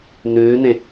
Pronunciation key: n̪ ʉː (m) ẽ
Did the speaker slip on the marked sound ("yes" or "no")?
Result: yes